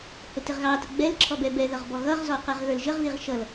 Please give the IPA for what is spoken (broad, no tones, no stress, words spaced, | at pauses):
hʊtɪʁɣɑtə ɡ͡bɛl ǁʰɔbɛbɛðʌʁ bɔɣʌʁzɔ qɛʁɣə˞lʒəʁðiʁ ʃʌl